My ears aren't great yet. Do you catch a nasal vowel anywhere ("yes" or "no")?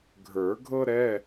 no